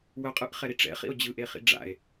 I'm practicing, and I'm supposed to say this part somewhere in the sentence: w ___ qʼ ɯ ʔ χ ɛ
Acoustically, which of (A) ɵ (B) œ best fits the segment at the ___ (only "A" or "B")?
B